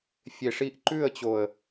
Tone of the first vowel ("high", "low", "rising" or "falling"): low